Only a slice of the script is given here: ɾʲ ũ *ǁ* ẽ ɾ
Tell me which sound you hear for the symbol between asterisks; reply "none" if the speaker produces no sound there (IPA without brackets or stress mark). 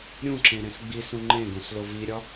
ǁ